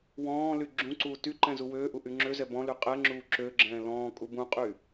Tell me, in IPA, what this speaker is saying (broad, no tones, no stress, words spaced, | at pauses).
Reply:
wɔ̃ːly ɡ͡ǁũǀuː tyǃɛ̃ zuwøːʔu ʔyŋ͡ǁøzɛ bɔ̃ly qʼɛŋ͡ǁuː ǁøɡ͡ǁɛ̃ː lɔ̃ː kʼubũqʼy